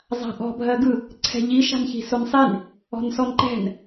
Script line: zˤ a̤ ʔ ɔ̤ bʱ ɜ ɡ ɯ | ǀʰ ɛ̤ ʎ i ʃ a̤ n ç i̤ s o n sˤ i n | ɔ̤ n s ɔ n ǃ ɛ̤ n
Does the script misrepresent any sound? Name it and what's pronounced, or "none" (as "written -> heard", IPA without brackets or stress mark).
none